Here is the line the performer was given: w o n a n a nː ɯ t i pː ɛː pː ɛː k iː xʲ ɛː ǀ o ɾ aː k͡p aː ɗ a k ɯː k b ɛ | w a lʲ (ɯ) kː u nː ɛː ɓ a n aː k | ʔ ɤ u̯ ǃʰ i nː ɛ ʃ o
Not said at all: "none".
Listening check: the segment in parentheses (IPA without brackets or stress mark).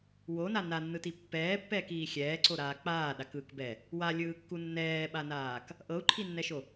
ɯː